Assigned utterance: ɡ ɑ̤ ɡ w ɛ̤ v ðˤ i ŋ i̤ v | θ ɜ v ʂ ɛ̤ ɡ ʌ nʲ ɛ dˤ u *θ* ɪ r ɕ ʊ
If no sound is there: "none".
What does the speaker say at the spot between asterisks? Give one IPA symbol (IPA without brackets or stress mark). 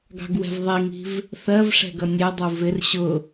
v